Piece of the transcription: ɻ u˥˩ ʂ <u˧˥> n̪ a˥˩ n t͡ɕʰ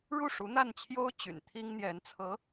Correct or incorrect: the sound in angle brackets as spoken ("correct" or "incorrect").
correct